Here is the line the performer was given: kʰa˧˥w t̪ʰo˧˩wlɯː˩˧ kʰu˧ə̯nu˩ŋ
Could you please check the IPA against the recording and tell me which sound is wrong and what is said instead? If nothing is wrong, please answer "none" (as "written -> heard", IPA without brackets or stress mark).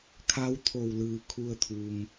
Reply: n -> t̪ʰ